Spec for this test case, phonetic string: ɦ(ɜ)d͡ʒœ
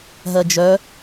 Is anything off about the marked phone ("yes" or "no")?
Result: no